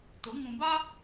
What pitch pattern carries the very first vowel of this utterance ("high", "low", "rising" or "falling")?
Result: rising